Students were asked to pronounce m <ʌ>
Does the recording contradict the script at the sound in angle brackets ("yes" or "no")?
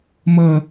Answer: no